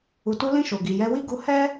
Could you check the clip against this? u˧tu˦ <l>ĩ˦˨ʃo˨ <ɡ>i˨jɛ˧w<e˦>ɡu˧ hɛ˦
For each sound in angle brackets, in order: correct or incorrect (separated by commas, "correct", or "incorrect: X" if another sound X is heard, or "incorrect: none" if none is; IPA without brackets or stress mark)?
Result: correct, correct, incorrect: i˦